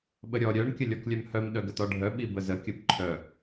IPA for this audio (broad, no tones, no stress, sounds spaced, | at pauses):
ɓ ə ɾʲ ɔ ɾʲ œ ɳ kʲ ə lʲ ɔ k lʲ œ m h œ m ɗ œ ɡ ə t ɔ ɖʱ œ ɓ i b ə z ə kʲ ə b ǃʰ œ